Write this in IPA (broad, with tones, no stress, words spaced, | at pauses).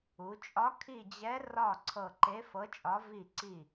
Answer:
u˩˧t͡ʃʼɒ˧˥ kʰi˦˨d͡ʑɛ˧˥ rɒ˦˨ ǀʰɤ˦˨ ǃe˧˥fɤ˧˥t͡ʃʼɒ˧˥ vi˦˨ǀi˦˨